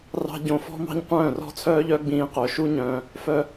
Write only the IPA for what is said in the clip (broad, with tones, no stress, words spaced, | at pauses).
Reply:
rɑ̤˧ ɟõ˧fɔ̤˦ mɑ̤˦ɲqʷœ̃ː˦˨rɔ̤˦t͡sʰœː˦ʎ œ˦ɡ͡bĩː˧ qœ˨ʃu˦ɲœ̃ː˧ | fœ˧